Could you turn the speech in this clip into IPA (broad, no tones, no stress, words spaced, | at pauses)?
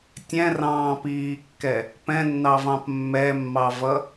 tʲɛ̃rɑ̃ːpiːkːɛ | pɛ̃nːɑvɑ̃p mːɛmːɑvʌ